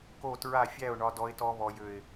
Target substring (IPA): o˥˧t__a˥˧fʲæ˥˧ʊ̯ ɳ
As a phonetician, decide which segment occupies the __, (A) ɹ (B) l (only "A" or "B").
A